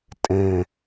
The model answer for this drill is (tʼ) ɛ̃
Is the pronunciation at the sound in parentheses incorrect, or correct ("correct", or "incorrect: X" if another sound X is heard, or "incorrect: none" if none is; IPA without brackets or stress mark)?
correct